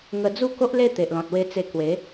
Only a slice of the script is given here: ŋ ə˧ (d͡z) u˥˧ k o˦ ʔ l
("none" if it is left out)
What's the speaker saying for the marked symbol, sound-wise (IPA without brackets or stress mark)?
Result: d͡z